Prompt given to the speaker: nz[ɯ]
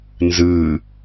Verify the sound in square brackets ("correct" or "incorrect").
correct